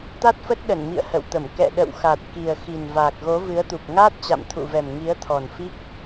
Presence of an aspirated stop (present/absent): present